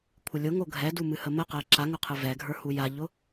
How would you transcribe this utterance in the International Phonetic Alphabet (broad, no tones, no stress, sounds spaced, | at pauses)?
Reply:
kʷʰ ɪ lʲ ʊ ŋ o ɡʱ ɛ d u m ɨ h ə m ə q ɛ ǁ a ŋ ʊ qʰ ɨ v ɛ ɡʱ ə˞ h u j a ʎ ʊ